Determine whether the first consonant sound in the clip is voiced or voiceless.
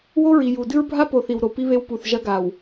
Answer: voiced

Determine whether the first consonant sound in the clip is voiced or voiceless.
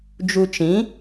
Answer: voiced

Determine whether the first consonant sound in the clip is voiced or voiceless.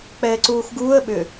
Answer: voiceless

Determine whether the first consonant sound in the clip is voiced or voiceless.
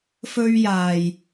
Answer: voiceless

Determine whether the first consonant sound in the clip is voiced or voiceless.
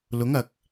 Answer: voiced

